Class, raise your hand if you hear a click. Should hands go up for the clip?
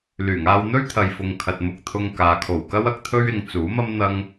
no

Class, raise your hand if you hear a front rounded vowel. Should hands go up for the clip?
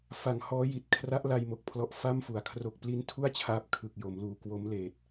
no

